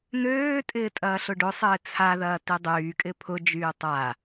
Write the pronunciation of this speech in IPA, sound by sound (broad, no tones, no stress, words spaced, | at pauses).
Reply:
n̪øːtʼɪː tʼɐːɬʊɖʊsˤɪː t͡sʰaðɐː tidˤyːkʼɪ pʰʊd͡ʒyː tˤa